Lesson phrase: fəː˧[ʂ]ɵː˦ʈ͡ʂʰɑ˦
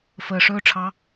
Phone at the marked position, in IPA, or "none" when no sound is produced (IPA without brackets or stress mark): ʂ